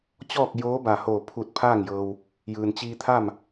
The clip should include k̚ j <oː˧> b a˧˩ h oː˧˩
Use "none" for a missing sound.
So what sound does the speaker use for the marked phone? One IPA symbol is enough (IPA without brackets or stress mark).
oː˧˥